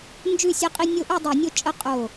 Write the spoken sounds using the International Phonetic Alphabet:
nd͡ʒʉ˥˨sʲɛ˦qʼi˦ nʲo˦ʔʉ˥˨dˤu˧˩˧nʲo˦ t͡ʃʼə˥˨ qʼo˧˩

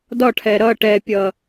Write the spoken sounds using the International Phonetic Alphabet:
dɒʈʰɛ ɾʌ ʈɛpʲʌ

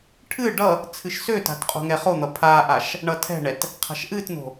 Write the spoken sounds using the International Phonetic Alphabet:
ʈʰɨ ɖʌ | t͡sʰɨʃsøta̤t qʼo̤ŋɛχon̪ʌ pʰaʔaʃ | ɳʌtʰɛ̤ɳɛt | qʰa̤ʃʔɨtno̤

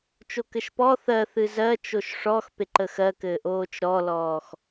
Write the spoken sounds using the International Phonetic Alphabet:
t͡ʃokɘʃpɔ θɜ θɨzɜ t͡ʃoʃʂɔx peǃəxɜkɘː ʔoːt͡ʃɾɔlɔːx

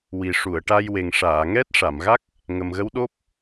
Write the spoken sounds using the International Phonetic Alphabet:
wi˨˩ʂu˨˩˨ə̯ʈa˧jwe˨˩ŋ ʂaː˨˩˨ŋɛ˦˥t̚ ʂa˨˩˨mɣa˦˥k̚ | ŋə˨˩mɣə˧˥wɗo˦˥p̚

